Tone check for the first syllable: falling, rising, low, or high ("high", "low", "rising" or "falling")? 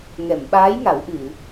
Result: low